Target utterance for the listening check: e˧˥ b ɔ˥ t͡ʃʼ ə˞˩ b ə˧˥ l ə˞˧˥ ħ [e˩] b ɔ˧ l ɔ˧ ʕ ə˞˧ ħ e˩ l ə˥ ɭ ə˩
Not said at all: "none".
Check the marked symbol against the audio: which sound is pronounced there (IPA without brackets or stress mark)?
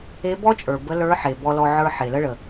e˩